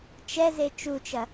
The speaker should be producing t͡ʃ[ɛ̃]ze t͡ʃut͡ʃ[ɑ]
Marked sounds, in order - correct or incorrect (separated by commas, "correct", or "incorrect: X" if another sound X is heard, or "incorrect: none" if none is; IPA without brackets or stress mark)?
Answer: incorrect: ɛ, incorrect: ɐ